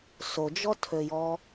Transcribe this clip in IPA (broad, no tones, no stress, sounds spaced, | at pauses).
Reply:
s o d͡ʒ ɔ tʰ ø j ɔ